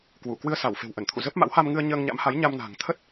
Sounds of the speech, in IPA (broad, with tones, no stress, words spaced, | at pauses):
kwu˧˩ kwɨ˧ə̯sa˧˩w fe̤˨˩wʔə˧˩nt̪ʰṵ˧˨ zə˦˥p̚ ma̰˧˥wha˧mŋɨ˧ə̯ ɲəː˧ŋɲa̰˧˥mha˨˦j ɲa˧mna̤˨˩ŋt̪ʰə˦˥t̚